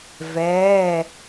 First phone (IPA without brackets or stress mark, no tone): v